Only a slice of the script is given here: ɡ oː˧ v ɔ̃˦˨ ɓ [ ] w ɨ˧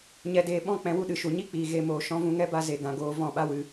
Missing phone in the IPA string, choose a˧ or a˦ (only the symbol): a˦